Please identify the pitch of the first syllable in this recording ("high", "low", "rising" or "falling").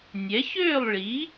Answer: rising